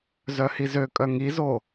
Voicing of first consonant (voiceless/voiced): voiced